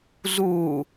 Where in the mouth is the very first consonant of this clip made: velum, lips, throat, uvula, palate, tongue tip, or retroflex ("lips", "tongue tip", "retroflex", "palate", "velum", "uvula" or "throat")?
tongue tip